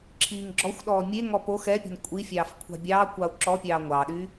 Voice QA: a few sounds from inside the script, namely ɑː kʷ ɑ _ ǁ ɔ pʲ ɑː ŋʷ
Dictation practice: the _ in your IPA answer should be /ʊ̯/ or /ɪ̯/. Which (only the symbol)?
ʊ̯